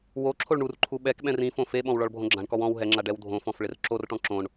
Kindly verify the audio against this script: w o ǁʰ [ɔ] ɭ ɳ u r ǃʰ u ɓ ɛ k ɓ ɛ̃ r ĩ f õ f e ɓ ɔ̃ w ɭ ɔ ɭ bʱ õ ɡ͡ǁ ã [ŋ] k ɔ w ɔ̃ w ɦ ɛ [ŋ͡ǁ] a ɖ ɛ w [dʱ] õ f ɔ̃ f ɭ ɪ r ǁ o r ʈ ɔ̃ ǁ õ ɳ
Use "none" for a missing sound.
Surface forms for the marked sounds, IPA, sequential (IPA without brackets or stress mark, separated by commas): o, ɳ, ŋ͡ǁ, dʱ